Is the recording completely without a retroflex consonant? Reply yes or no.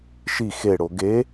no